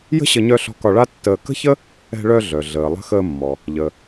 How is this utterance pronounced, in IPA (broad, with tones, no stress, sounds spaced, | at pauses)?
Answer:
j ə̤˥ ɕ ə˧ ɲ œ˧ ɬ ɔ̤˧ k ɒ˧ ɭ a˥ tː əː˧ k ə̤˥ ç ə˥ | ɛ̤˧ ɭ œ˧ ɮ œ˩ ɮ əː˩ lˠ ə̤˧ x əː˧ mː ɔ˩ | ʎ ə˩